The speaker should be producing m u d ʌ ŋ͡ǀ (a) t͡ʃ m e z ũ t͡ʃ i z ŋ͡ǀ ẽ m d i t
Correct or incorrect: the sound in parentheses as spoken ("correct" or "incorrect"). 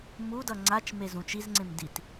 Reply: correct